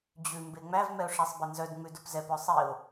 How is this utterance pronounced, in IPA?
d͡ʑ ʉ m b e ŋ͡m æ v m ɛ ʊ̯ ʂ æ sˤ b ɛ n z œ d ŋ͡m ʉ d o p z ɛ p œ sˤ i ʊ̯

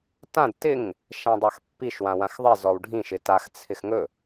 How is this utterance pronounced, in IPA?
t ã d t ɪ ŋ | ʃ ã dˤ a x pː i ʃ w ã w ã x ðˤ ɪ z ɔ w ɖʱ ĩ ʃ ɪ t a x t͡sʰ ɪ x ŋ ɵ

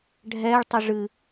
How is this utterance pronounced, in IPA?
ɖʱ ɛː ɭ tˤ ɵ ʐ ɨ

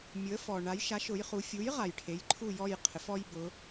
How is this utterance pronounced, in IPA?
mʲ ʊ˩˧ ə̯ f ɔ˩ ɳ a˩˧ j ʃ a˩˥ ʃ ʊ˩˧ j χ u˩˧ fʲ u˩˥ j ʁ a˩ j ʈʰ e˩˧ j ǃʰ u˦˨ j ɔ˦˨ j qʰ ɪ˩˧ f ɔ˦ j b ʊ˩˧

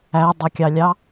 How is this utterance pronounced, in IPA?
æ dˤ ʌ kʲ ɑ lʲ ɑ

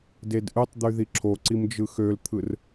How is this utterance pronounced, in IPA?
d e d ʔ ɯ tˤ d̪ y ð i ǁʰ o ǀ i m d͡ʒ ɯ x ø l t̪ʰ ɯ r

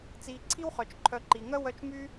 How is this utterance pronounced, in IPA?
t͡s iː˨ ǀʰ i˥ w χ œ˩ t͡ʃ ǃʰ œ˨ ǃ i˩ ŋ œ˥ w œ˦ t͡ʃ m y˥

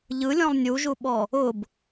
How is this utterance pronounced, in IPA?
ʎ ɯ lʲ ɔ̃ lˠ nʲ u ʒ u ɓ ɔ | ʊ b

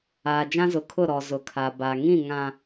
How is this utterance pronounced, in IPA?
aː˨ d͡ʒ ã˦ z ʊ˨ kʰ ʊ˦˨ ɾ ɔ˨ z ʊ˨ kʰ a˨ b a˨ ŋ ĩ˦˨ ŋ ã˨

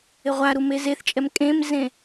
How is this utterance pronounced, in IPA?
ɪ ʁʷ a ɾ u m e z e θ t͡ʃʼ ɛ m kʼ ẽ m z ẽ

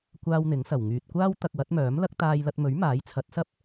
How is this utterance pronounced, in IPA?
kʷ aː˥ w n̪ ɪ˨˥ ŋ s ɐ˨˩ w ŋ yː˨ t̚ kʷ aː˥ w t̪ ɐ˧ k̚ w ɐ˨˥ t̚ m œː˨˥ m l ɐ˥ k̚ t̪ aː˧ j l ɐ˧ t̚ m ɵ˨˥ ɥ m aː˨˥ j t͡sʰ ɐ˨˥ t̚ s ɐ˥ p̚

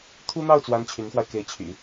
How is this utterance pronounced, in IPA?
t̪ʰ u˥ n̪ ɑ˥˩ ʊ̯ t͡s w a˧˥ n t͡ɕʰ y˧˥ n x w a˧ ɪ̯ k e˧˥ ɪ̯ t͡ɕʰ y̰˨˩˦

